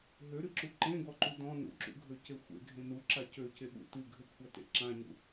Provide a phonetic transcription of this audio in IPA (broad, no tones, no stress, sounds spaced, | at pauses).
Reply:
ɦ ø ɾ ɨ ǁ u ǃ ẽ ɡ ɔ ǃ u d ɔ̃ n ṵ ǁ ṵ ɡʱ ø c e xʷ ḛ ɡʱ ẽ n u ǁ a c ø c e ɓ ṵ t ɨ ɡʱ ʏ kʷʰ a t ḛ ǁ ã ɲ ṵ